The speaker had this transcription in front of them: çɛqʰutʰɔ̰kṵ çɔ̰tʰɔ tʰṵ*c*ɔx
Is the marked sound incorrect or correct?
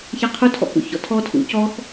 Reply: correct